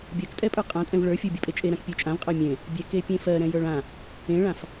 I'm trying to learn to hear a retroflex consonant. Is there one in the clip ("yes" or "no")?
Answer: yes